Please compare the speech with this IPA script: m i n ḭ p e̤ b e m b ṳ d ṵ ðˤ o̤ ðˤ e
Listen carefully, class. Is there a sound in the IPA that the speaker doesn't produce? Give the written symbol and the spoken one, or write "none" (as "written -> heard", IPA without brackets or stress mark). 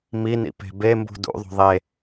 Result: none